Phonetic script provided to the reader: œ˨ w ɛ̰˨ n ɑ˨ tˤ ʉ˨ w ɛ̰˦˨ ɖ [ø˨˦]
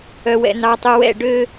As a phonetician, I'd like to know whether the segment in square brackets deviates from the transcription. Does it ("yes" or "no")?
yes